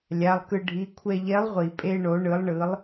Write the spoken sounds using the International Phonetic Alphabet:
lʲa˩˧˩lˠkɯ˧ ɖʱi˩˧˩kʷʰɛ˧ ʎɛ˧˥lˠʁʷi˩pʼe˧ ɳo˩˥ɳɯ˩˥lˠɳɯ˩˥lˠ

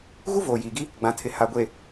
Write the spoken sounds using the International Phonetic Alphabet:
ɣu˦voː˨jiː˨ɡi˦ | ɡ͡bã˨tʰɪ˨ ha˨ɡʷe˨

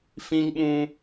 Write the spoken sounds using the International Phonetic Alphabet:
fĩ˦ŋɓũ˦

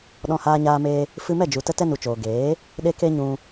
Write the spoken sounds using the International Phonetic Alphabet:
ɗɔ̃˧haː˧ɲaː˧meː˧ | fɨ˧mɛ˦˨d͡ʒu˨ tə˦tɛ˦nu˨t͡ʃoː˨ ɡeː˨˦ | ɗe˦ke˦ ɲũ˧

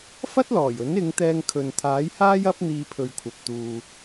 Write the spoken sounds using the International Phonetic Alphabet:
fɐ˥t̚lɔː˨˩jɵ˨˥nɪ˨˧ŋ t̪ɛː˧ŋkʰɵ˨nt̪ʰaː˨˥jhaː˥j ɐ˥p̚n̪iː˧pʰɵ˨ɥkʷʰɐ˨p̚ t̪uː˧

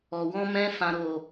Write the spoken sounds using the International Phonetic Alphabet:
ɔ˨ wɔ̃˧ mɛ̃˧ fã˨ɾo˨

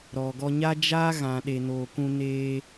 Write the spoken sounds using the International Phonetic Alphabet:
ɾɔ˨ɡɔ˧ɲa˦ d͡ʒaː˦ɣã˨ ɗe˨noː˨kũ˧ neː˧

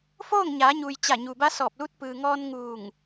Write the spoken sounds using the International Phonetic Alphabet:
foː˥˨ŋɲaː˩˧ɲuː˩j t͡ɕa˧˩ɲu˩ba˧˥ sɔː˧˩p̚lu˧˥t̚ pɯː˩ŋɔː˧n ŋuː˧˩ŋ

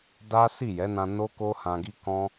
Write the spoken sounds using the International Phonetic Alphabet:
da˦ si˦˨jɛ˨˦nã˧ no˦ko˦ hã˧ɡi˦ kɔ̃˦

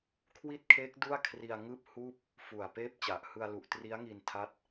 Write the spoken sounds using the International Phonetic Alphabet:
kʰwi˥˩t̚kʰeː˦˥k̚ du˥˩a̯kʰri˧a̯ ŋɯː˥˩p̚huː˥˩p̚ | fu˨˩a̯peː˥˩p̚t͡ɕa˨˩ʔ hɯ˧a̯lu˨˩ʔ tri˦˥a̯ŋi˧n tʰa˦˥t̚

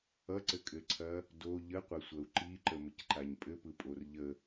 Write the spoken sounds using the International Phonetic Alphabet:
ʌǀɘkʼɘǀʰɐ | do ʎəqʷɐsʷɐu̯ ǃiǃəməcǃaɲ pʼɘpɯpʼor ʎə

